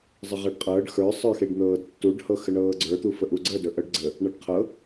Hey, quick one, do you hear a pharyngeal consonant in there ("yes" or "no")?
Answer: no